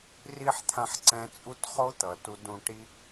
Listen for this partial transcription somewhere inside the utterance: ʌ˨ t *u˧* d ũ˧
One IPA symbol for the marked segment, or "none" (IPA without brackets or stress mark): u˧